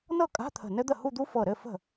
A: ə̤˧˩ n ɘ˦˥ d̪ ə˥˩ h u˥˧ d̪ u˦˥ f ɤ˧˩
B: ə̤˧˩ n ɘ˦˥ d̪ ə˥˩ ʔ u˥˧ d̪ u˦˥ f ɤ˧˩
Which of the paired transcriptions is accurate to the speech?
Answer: A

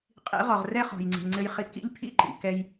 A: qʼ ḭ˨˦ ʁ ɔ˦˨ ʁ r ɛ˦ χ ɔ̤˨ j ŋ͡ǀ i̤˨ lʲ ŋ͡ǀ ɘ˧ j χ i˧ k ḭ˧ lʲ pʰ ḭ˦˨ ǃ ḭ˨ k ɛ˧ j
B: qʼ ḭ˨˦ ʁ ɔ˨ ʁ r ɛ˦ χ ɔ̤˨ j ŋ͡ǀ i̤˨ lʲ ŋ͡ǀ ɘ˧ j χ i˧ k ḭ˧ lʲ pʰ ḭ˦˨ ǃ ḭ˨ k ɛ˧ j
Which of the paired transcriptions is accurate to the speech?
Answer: B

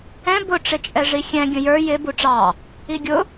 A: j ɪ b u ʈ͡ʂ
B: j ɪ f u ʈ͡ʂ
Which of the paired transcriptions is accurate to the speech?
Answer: A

